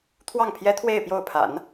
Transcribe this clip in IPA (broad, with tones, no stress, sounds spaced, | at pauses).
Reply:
t̪ʰ w ɑ˥˩ ŋ pʰ j ɛ˥ t̪ʰ w e˥˧ ɪ̯ p j o˥˩ ʊ̯ pʰ a̰˨˩˦ n